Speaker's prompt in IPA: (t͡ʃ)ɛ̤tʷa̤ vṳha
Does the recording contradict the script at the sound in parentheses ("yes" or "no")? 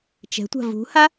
no